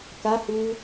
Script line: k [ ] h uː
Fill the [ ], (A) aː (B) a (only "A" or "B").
B